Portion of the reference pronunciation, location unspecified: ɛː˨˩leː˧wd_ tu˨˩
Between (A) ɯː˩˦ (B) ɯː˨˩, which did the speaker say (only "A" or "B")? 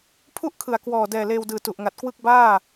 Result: B